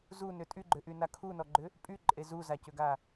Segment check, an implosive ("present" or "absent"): absent